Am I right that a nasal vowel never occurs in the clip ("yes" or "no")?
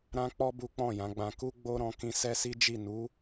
no